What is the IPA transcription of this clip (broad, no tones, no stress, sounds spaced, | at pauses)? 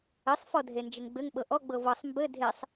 ɘ sˤ f ɔ dʱ e n d͡ʒ ɘ ŋ ɡ͡b ɘ ŋ ɓ ɤ ʔ ɔ ɡ͡b ɤ v ɤ sˤ m b ɘ dʱ e sˤ